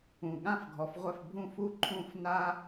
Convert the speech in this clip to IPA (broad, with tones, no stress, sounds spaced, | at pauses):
ũ˩ ɠ ã˥˩ f ɡʱ ɔ˩ f ʁʷ ɛ˥˩ f bʱ ũ˥˩ f u˥˩ ǃʰ ũ˥˩ f n a˥